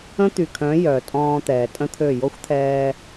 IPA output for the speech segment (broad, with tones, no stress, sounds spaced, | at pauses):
ə̃ː˦ t̪ y˨ kʰ œ̃˨˦ j œ˨ tʼ ɔ̃ː˧ t̪ ɛː˨ tʼ ə̃˦ t̪ʰ ø˦˨ j o˦ xʷ t̪ʰ ɛː˧